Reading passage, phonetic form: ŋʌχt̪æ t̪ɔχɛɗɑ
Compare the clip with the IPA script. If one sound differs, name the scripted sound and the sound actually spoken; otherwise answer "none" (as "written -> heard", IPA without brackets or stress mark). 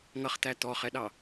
none